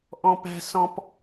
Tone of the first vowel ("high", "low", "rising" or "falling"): high